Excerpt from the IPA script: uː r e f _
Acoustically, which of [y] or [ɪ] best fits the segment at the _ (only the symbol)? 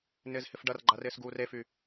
y